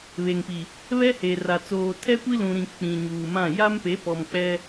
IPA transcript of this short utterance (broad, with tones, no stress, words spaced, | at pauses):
βe˨ŋpi˨ | βɛ˦he˨ra˨ t͡soː˨tʰɛ˦kʷi˦ lũ˨ɾĩ˨ k͡pĩ˨ɲuː˨mã˦˨ ja˦mpe˨˦pɔ˨mk͡pɛ˦